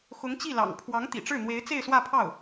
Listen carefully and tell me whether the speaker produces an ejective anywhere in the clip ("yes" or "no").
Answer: no